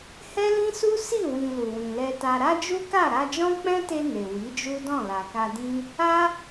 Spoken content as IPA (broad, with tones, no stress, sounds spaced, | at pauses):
h ɛ˦ l ĩ˦ s u˦ s i˦˨ w ĩ˨ l u˨ w ĩ˨ l ɛ˧ t a˧ ɾ a˦ d͡ʒ u˦ k a˦˨ ɾ a˧ d͡ʒ ɔ̃˦ k͡p ɛ̃˦ t e˧ n e˨ w i˨˦ d͡ʒ u˦ d ɔ̃˦˨ l a˨ k a˧ d ĩ˦ | a˦